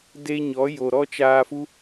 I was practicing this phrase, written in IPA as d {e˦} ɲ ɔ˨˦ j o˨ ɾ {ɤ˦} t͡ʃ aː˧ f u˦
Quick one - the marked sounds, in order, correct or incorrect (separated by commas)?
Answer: correct, incorrect